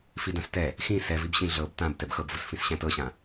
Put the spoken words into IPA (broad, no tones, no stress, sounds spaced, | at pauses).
f i d ã s t ɛ | x ĩ s ɛ v i b ɕ ĩ ɮ ɤ b t ã b t ɛ b x ɤ b v ʊ s f ĩ s ɕ æ̃ t ɤ ɕ ã